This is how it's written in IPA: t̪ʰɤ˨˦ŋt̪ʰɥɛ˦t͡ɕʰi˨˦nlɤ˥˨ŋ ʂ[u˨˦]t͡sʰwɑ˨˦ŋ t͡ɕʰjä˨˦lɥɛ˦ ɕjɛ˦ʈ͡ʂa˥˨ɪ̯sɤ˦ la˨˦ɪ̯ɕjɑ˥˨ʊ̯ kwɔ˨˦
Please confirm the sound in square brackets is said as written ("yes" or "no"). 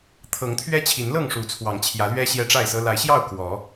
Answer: yes